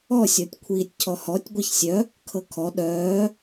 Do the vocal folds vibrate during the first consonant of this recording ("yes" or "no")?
no